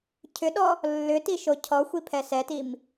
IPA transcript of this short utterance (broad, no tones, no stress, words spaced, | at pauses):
cʰʏɗɔ | lːʏtiʃo cʰɔxʷipʰɛ sɛtim